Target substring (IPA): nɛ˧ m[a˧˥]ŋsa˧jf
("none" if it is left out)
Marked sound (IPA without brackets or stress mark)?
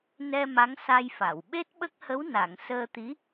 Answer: a˧˥